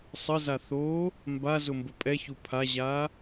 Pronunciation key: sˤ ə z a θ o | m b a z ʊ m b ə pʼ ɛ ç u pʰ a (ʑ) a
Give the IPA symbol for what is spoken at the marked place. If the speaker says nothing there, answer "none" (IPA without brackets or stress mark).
ʑ